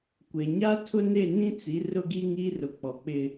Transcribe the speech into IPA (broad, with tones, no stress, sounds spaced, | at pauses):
kʷ e˨ ɲ a˦ tʰ ʊ˦ n e˦˨ n ĩ˦ t͡s i˨˦ r ʊ˦ ɡ i˦ ŋ i˦ r ʊ˨ k͡p ɔ˨ k͡p ɪ˦